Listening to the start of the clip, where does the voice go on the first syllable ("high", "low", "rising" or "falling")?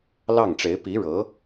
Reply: falling